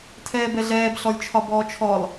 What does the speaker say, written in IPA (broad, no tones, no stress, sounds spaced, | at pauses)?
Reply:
tʰ ɛː b ɛ ɮ ɛː b ɬ ɔ lʲ t͡ʃʰ ɒ b ɔː t͡ʃʰ ɔ lˠ